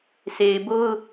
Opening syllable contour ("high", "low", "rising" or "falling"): low